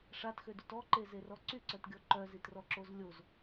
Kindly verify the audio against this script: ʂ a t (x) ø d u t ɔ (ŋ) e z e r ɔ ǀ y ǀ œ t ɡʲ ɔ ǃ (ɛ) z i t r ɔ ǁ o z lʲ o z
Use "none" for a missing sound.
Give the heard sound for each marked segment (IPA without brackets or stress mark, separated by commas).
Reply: x, ǃ, œ